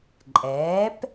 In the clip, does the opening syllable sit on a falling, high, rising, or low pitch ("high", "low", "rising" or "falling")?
rising